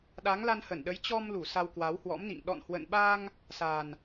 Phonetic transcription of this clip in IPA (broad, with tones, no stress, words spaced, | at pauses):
ɗa˨˦ŋla˧nhə˧˩nɗə˨˦j t͡ɕɔ˧mlu˧˩ sa˧wkwa˨˦whwɔ̰˧˥mnḭ˧˨ŋ ɗɔ̰˧˨nhwə̰˧˨nɓa˧ŋ | sa˨˩n